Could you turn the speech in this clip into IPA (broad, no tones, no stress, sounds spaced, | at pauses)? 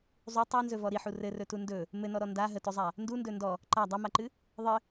zˤ u tˤ a n z ɵ v ɔ ɾ i ħ u r ɘ r ɵ t u n d ɵ | m ɘ n ɔ ɾ ɔ n d a ɦ ə t ɵ zˤ a | n d u n d ɵ n d ɔ | ǃ a dˤ a m a ǃ ɨ | ðˤ ɘ